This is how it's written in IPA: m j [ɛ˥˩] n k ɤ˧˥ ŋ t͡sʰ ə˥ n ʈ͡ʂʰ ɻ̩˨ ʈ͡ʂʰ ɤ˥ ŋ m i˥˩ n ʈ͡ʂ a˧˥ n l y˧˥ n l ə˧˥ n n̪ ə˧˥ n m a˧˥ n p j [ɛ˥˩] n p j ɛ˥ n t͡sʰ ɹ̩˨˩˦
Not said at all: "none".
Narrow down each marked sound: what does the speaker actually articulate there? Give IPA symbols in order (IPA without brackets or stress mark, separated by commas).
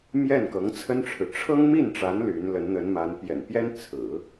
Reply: ɛ˥˩, ɛ̰˨˩